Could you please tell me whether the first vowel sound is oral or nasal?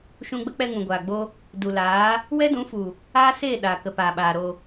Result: nasal